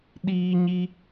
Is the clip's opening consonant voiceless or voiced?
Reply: voiced